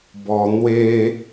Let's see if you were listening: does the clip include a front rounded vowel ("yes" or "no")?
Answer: no